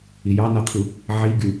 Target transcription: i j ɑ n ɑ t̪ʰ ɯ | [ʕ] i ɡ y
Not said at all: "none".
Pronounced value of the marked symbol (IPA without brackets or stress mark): ʕ